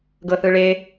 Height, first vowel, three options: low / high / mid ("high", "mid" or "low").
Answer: mid